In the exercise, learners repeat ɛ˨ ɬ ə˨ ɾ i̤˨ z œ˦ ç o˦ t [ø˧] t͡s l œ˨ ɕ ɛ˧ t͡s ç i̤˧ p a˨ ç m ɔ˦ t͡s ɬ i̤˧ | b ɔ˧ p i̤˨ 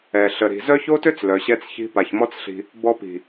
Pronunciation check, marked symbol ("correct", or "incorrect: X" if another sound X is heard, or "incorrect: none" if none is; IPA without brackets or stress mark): incorrect: ø˦